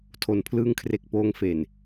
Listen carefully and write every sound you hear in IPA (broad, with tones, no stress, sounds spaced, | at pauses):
tʰ o˧ n pʰ l ɯː˥˩ ŋ kʰ r e˦˥ k̚ p oː˦˥ ŋ f e˨˩ n